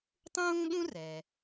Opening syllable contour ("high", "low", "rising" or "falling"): high